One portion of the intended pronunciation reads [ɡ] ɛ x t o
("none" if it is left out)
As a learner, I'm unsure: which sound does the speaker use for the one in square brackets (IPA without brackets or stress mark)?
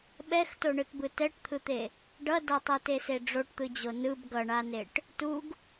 ɓ